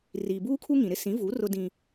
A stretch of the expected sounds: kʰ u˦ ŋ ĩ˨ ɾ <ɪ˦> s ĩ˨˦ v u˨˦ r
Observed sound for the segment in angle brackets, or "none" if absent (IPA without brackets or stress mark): ɪ˦